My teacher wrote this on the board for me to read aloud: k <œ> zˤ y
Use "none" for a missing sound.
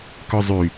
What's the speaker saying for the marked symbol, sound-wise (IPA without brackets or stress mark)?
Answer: œ